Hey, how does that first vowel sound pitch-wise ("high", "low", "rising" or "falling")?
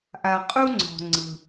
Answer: low